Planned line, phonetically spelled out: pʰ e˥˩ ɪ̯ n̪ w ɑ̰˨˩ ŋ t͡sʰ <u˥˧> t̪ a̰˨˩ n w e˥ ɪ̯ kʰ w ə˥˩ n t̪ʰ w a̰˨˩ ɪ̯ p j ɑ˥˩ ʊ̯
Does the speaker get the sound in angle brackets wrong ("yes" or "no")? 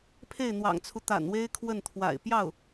yes